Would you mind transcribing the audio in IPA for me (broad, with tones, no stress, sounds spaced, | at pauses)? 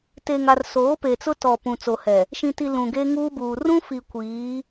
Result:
t e˨ ŋ a˨ r s oː˨˦ p e˨ t͡s ʊ˦ t ɔ˨ p ũ˨ t͡s o˨ h ɛ˨ | ʃ ĩ˨ t i˨ l ũ˨ ɡ e˦ ŋ uː˦ b uː˨ r ũ˦ f i˨ kʷ iː˨˦